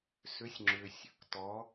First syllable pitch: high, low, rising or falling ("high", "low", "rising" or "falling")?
rising